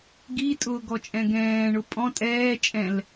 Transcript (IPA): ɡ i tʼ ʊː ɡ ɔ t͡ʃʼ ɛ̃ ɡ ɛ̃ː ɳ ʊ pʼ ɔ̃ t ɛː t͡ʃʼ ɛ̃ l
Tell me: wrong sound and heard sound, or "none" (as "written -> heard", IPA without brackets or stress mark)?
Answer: t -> tʼ